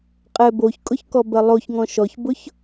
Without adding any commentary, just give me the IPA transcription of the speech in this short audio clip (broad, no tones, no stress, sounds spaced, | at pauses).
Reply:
qʼ ɛ b o ç kʼ ʊ ç k ɔ b ɜ lˠ o ç ŋ ɔ̃ ʃ ɔ ç b ʊ ç